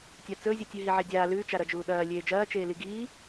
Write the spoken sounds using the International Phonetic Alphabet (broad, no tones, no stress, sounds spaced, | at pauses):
tʲ a t͡s ɵ zʲ u tʲ ʉ ɦ i ʕ e dʲ aː l ʉ t͡ʃ a ɾ ɐ d͡ʒ uː ɗ ɐː lʲ eː d͡ʒ ɐː t͡ʃ eː l i ɡ iː